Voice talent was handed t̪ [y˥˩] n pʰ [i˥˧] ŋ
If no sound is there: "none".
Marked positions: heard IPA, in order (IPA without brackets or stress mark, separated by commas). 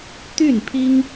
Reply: y˥˩, i˥